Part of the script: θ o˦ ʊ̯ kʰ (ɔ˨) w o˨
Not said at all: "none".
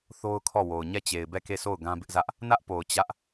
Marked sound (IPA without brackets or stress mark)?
ɔ˦˨